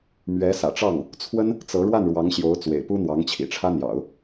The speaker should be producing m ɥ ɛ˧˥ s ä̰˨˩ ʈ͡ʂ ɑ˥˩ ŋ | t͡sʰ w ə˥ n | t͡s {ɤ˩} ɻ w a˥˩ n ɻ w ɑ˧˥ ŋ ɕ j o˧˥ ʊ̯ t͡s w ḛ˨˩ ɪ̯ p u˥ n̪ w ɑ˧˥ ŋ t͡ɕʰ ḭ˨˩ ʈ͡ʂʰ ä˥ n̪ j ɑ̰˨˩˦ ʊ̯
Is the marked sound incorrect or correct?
incorrect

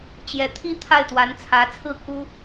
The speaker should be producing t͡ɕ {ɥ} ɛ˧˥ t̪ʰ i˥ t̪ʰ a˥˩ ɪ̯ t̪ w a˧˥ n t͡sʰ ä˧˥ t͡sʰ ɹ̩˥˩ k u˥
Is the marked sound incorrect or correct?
incorrect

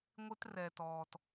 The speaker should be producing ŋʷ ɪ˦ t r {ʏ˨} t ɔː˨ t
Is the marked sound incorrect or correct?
incorrect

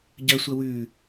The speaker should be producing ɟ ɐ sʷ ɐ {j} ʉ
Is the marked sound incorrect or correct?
incorrect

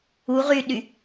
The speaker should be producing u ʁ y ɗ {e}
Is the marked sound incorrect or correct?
incorrect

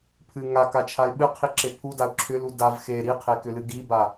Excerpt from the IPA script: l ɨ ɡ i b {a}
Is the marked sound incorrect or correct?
correct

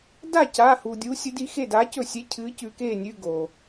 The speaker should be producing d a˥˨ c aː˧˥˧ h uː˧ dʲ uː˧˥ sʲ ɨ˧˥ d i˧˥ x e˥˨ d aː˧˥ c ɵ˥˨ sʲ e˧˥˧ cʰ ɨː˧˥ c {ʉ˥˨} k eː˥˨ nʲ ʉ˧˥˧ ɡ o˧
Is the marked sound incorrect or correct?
incorrect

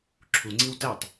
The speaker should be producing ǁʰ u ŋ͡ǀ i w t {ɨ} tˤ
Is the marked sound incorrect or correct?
incorrect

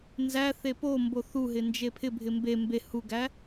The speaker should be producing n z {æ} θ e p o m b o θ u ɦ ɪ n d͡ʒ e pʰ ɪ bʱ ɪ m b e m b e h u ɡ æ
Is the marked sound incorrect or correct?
correct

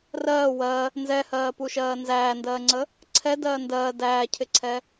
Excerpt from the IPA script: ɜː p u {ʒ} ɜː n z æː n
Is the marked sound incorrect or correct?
incorrect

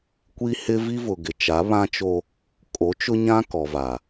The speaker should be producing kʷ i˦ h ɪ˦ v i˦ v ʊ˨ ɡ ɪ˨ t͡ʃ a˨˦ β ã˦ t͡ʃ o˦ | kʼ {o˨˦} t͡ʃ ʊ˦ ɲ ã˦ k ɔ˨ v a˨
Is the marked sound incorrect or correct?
correct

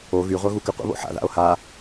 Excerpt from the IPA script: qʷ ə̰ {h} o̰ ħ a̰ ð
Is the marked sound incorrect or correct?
incorrect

